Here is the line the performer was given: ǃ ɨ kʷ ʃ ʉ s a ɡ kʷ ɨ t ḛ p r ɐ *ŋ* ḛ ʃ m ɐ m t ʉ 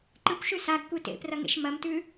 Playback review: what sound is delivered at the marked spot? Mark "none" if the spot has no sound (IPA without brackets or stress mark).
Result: ŋ